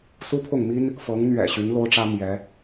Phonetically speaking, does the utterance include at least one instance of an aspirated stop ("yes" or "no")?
yes